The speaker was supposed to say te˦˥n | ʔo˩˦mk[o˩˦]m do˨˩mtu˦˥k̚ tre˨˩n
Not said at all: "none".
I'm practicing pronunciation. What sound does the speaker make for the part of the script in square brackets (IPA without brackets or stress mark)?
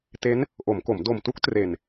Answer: o˩˦